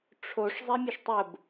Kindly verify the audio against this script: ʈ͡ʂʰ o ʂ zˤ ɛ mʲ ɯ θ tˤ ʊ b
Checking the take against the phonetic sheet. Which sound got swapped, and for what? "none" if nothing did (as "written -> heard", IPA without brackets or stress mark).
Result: θ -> ʃ